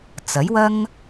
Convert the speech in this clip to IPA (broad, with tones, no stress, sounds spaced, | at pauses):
t͡s ɐ˨˥ j w ɐ˥ ŋ